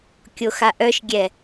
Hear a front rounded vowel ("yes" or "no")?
yes